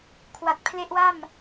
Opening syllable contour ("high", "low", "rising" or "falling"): low